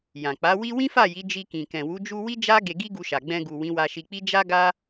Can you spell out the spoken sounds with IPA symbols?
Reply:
j ã˨ k͡p a˨˦ w i˦ w ĩ˦ f a˦˨ j i˨˦ d͡ʒ i˧ k ĩ˨ k ɛ̃˨ w u˨˦ d͡ʒ u˧ w i˦ d͡ʒ a˦ ɡ e˧ ɡ i˦ ɡ u˧ ʃ a˨ ɡ͡b ɛ̃˧ ɡ u˨ w ĩ˨˦ w a˧ ʃ i˧ k͡p i˦ d͡ʒ a˦ ɡ a˦

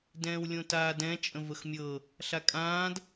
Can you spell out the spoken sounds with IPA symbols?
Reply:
d ɛ̃ː w lʲ õ t aː d ɛ̃ t͡ʃʼ ə̃ v ə x mʲ ɤ | ɬ a kʼ ãː d

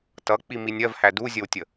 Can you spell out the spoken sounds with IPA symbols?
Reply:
t ʌ k͡p i m i nʲ ɜ v h æ d u zʲ ə w tʲ ə

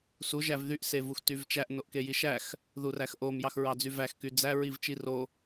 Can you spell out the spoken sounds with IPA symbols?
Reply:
s u ʒ æ v ð y ʔ s e v u x t y v t͡ʃ æ ʔ n o ʔ k e j i ʃ æ x | ð u r æ x ʔ o m j ɑ x ɹ ɑ d͡z y v æ x k y d͡z æ ɹ i v t͡ʃ i r o

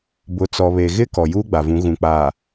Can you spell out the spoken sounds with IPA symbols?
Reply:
b ʊ˨˦ t͡s ɔ˨ β e˨ ɣ ɪ˦ k ɔ˨ j uː˦ ɡ͡b a˨ v ũ˨˦ ɣ ũ˨ k͡p aː˨

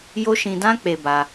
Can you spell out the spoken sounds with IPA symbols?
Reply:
j o˦ ʃ ĩ˧ d ã˦ k͡p e˧ b a˧

